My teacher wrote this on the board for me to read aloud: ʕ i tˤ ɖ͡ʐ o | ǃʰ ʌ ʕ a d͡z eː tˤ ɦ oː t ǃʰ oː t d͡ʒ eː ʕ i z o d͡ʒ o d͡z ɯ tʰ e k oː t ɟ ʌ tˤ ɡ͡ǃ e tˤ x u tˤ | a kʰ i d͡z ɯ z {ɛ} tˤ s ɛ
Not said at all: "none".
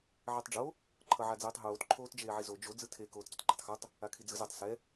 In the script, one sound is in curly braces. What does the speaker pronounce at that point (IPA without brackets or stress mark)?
ɛ